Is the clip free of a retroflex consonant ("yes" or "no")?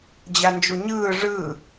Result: no